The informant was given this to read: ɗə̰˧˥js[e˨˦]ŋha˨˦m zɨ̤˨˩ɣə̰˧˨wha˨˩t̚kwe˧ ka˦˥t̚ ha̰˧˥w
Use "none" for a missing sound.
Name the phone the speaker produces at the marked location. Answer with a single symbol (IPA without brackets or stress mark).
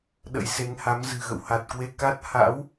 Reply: e˨˦